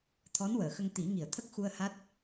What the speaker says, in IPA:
t̪ʰ ɔ˧˥ n w əː˨˩˨ x ə˧ ŋ t̪ i˨˩˦ ŋ i˨˩˨ ə̯ t̪ʰ ə˦˥ k̚ x u˧ ə̯ h a˦˥ t̚

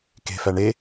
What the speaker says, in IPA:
k e̤ f æ ɳ e

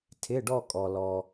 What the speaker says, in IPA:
tʰ ɪ˧˥˧ ɖ ɔ˥˧ kʼ ɔ˨ l ɔ˨

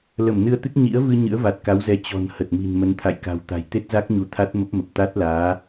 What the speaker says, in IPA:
l ə˧˩ m n ɨ˧ ə̯ t̪ ɨ˦˥ k̚ ɲ ḭ˧˥ ə̯ v ɨ˧ ɲ ɨ̰˧˥ ə̯ v a˨˩ t̚ k a˨˦ w z ɛ˨˦ t͡ɕ ɔ̤˨˩ n h ə˨˩ t̚ m i̤˨˩ n m ə˨˦ n t̪ʰ a̰˧˨ j k a̤˨˩ w t̪ a̤˨˩ j t̪ e˦˥ t̚ z a˦˥ k̚ ɲ u˨˦ t̪ʰ a˦˥ t̚ m ə˦˥ p̚ m ə˨˩ p̚ t̪ a˦˥ t̚ l aː˨˦

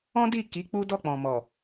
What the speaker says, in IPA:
ɔ̃˦ d i˦˨ k i˨˦ k͡p u˦ d ɔ˦˨ k͡p ɔ̃˨ m ɔ˨

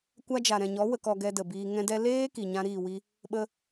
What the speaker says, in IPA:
kʷ a˧ d͡ʒ a˨ ɾ ɛ̃˨ ɲ ɔ˨˦ w ə˧ k ɔ˧ ɡ ɛ˧ d ə˨ b iː˧ ŋ ɛ̃˦ d ɛ˦ l eː˦ k i˨ ɲ ã˧ ɾ iː˦˨ w i˦ | ɓ ə˧

